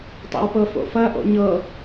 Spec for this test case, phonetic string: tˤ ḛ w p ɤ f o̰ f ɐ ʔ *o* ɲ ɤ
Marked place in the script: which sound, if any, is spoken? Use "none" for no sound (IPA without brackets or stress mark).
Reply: o̰